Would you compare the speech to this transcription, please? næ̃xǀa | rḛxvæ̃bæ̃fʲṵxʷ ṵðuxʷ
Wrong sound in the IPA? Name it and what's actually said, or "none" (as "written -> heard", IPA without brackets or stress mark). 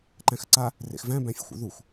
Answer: n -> ǃ